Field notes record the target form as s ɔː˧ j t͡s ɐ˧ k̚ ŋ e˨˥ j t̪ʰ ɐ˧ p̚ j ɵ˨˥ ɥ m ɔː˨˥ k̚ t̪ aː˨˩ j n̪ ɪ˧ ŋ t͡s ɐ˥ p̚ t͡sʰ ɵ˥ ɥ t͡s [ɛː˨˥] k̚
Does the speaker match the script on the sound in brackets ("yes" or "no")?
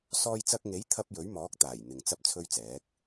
yes